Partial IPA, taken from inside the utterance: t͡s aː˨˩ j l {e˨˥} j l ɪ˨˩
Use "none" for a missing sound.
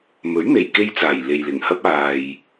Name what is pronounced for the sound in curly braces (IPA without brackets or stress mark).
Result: e˨